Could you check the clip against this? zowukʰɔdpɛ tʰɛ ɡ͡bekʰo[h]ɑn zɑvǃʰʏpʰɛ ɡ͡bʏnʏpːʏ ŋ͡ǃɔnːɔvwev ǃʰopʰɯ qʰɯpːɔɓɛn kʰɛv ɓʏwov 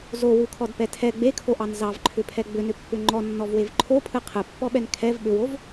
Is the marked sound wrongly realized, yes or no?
yes